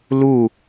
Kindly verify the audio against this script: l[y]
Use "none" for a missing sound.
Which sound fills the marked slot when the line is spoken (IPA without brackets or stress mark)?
u